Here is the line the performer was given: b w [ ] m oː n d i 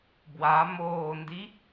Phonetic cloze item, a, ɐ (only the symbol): a